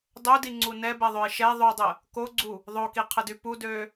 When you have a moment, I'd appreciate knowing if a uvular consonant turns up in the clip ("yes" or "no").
yes